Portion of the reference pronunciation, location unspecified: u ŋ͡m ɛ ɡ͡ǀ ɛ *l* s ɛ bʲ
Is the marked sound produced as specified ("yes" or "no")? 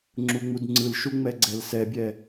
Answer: yes